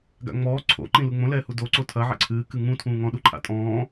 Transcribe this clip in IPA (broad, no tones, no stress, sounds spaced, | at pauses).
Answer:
ɡ a̰ ŋ͡m ɔː ǀʰ o̰ ǃ ĩ l u ŋ͡m õ l ɛː h u d o ǀ o tʰ ɐ ʕ ɛ̰ ǀʰ ɨː k ɨ ŋ ũ tʰ ũː ŋ ɔ̃ ɗ u ǃʰ a̰ tʼ ɔ̃ː